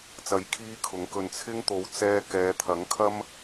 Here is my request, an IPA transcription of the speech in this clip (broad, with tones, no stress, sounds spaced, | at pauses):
t͡s ɐ˧ j kʰ iː˥ kʰ ʊ˨˥ ŋ k ɵ˧ n t͡sʰ ɪ˥ ŋ t̪ o˨˧ w t͡s ɛː˧ k ɛː˨˧ t̪ʰ ɐ˨˥ ŋ kʰ ɐ˥ m